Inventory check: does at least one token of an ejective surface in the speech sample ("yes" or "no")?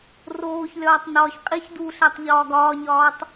yes